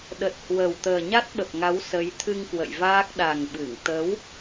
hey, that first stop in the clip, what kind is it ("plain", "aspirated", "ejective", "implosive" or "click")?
implosive